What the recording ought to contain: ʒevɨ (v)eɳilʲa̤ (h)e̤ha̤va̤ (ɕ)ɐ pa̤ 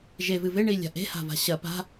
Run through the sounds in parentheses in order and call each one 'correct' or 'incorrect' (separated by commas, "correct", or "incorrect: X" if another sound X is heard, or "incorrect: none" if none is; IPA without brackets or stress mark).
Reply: correct, incorrect: ʔ, correct